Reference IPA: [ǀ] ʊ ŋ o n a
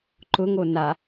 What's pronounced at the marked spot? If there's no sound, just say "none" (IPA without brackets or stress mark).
ǃ